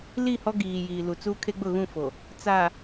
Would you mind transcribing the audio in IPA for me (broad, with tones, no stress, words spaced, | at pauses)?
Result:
li˦˨hɔ˦ɡiː˨ jiː˨lu˨t͡su˦ kʰe˦ɡ͡bʊ˦˨ɣũ˦˨ fo˨ | t͡sa˨